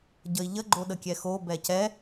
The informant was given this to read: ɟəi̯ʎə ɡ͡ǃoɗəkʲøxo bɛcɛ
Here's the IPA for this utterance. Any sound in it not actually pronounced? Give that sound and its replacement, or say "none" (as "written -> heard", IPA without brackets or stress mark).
ø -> ɛ